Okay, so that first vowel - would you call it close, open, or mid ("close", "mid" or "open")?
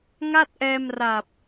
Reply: open